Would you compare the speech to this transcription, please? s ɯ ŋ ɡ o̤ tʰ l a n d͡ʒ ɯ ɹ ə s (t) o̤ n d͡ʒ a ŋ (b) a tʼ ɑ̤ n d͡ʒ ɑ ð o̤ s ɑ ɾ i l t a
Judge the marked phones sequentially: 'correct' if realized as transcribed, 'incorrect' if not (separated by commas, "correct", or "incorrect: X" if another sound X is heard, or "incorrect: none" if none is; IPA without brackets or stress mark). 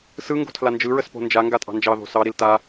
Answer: incorrect: p, incorrect: ɡ